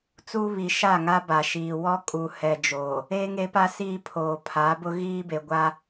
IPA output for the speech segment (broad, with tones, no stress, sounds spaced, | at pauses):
t͡s u˦ β i˨ ʃ a˦˨ ŋ a˦ b a˨ ʃ iː˨ w ɔ˦ kʼ u˨ h ɛ˨ d͡ʒ oː˨ | eː˦ ŋ e˨˦ p a˦ s i˦ pʰ oː˨ pʰ a˨˦ b ʊ˦ ɣ iː˦ b e˨ ɡʷ a˦